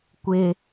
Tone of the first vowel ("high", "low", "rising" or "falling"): high